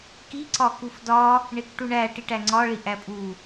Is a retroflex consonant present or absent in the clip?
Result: present